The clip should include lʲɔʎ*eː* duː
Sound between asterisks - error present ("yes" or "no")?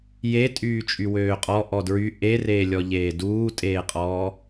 no